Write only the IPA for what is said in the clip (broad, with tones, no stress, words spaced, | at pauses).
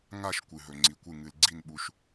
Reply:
ŋa˥˧ʃ kʷɨ˩ɦɵ˩ŋ͡ǀi˩kʷɨ˧˩ ŋɨ˩lɡ͡ǀi˧˩nɓu˩ʃ